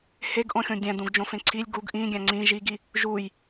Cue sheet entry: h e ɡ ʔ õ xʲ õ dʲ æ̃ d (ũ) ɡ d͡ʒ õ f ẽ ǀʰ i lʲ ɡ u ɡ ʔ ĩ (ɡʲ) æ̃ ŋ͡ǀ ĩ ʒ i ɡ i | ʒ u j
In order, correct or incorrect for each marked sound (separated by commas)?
correct, correct